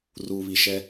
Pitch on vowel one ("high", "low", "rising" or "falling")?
low